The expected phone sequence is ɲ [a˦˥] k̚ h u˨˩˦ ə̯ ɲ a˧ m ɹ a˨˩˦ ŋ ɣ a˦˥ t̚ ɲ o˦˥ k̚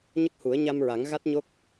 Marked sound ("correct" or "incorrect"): incorrect